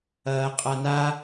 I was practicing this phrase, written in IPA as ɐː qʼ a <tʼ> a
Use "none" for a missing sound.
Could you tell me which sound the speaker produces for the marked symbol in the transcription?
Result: n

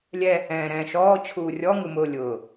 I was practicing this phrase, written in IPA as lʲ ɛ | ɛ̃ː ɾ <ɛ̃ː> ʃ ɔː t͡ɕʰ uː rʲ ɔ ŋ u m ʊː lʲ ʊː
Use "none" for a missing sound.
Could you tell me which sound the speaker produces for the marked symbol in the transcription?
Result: ɛ̃ː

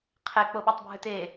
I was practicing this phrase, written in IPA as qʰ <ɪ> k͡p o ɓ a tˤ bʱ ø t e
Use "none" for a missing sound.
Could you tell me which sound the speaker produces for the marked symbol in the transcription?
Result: ɛ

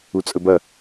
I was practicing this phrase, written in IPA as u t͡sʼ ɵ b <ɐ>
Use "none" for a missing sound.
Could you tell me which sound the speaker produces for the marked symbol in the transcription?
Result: ɐ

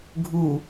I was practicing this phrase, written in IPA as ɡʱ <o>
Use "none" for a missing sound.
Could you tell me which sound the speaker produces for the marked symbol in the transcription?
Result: u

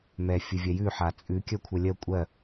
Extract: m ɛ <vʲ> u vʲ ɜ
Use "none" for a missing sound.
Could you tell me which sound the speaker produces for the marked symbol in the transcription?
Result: fʲ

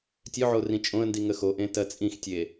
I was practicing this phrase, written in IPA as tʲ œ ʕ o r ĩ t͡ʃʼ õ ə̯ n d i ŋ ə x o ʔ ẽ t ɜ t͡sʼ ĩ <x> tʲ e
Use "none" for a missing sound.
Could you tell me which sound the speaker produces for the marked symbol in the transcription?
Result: x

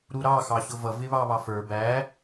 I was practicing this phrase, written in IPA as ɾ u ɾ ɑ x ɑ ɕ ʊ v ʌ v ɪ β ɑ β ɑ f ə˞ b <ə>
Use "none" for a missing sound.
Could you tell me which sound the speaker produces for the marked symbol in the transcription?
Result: æ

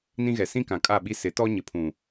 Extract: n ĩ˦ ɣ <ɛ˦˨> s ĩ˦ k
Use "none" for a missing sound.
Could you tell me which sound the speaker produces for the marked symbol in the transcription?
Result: ɛ˨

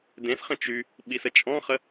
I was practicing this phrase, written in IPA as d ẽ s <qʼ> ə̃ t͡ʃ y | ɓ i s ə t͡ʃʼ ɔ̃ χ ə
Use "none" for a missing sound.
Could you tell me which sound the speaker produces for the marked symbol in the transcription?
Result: χ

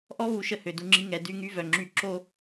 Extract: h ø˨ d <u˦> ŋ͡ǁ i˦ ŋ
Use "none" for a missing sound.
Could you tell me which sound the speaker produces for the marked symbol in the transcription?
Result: u˦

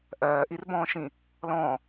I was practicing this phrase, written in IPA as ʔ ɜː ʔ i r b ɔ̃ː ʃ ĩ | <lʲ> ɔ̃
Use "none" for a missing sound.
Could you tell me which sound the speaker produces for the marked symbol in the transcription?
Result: l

